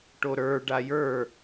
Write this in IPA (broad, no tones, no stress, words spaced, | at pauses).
ʈoɾə˞ ɖajə˞